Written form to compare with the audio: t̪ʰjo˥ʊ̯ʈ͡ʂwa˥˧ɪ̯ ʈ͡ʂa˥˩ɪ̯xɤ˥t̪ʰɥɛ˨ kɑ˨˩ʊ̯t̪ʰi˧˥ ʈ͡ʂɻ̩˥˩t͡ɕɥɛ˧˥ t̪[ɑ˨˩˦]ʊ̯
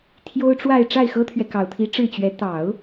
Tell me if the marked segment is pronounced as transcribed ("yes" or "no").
yes